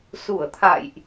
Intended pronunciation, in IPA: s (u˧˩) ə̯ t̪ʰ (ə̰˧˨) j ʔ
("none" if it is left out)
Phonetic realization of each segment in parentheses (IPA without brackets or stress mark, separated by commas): u˧˩, a̰˧˨